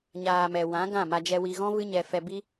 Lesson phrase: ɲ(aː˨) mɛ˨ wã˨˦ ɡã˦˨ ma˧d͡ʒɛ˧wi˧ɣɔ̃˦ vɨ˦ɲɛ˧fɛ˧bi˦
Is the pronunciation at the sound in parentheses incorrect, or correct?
correct